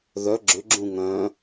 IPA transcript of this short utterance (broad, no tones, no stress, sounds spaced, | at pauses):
ð œ ɡ͡ǁ ʏ ɡ͡ǁ ũ ŋ œ̃